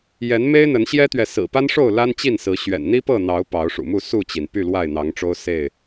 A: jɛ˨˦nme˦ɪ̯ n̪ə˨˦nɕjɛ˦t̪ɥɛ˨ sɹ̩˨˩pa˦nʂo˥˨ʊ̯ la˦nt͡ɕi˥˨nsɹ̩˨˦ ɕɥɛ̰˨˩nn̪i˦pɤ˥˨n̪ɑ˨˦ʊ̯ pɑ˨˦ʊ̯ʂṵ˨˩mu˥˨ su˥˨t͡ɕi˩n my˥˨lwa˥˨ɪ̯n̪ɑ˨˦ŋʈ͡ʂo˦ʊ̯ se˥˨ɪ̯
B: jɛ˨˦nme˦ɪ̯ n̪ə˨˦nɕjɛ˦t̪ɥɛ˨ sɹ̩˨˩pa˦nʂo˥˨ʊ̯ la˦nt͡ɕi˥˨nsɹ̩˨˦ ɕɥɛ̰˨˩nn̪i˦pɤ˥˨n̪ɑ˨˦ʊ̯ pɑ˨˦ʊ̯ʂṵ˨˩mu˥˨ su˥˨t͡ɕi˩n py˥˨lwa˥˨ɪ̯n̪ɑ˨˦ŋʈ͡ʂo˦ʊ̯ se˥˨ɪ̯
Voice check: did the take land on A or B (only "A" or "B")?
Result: B